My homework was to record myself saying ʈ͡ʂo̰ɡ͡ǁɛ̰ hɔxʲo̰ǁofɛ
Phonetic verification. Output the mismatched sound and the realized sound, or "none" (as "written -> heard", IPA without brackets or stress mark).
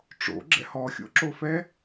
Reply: none